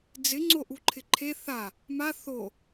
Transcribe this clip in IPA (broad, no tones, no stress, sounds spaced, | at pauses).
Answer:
d͡z ɪ ŋ͡ǀ o ʔ u ǃʰ ɪ ǃʰ e θ a | m a θ o